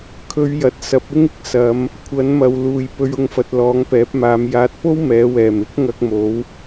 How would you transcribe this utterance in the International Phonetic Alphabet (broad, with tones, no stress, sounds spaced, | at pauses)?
kʰ ɵ˨˧ ɥ j ɐ˨ t̚ s ɐ˨˥ p̚ ɪ˥ ŋ ɪ˨ k̚ s ɐ˨˧ m | kʷʰ ɐ˨˥ n m ɐ˨ w l uː˨ j p ɵ˧ ɥ ʊ˧ ŋ f ɐ˨ t̚ l ɔː˨˥ ŋ p ɛː˨˥ p̚ m aː˨˧ m j aː˨ t̚ p o˥ w m ɛː˨˧ w ɛː˨˩ m ɪ˥ k̚ ŋ ɐ˧ k̚ m o˨˧ w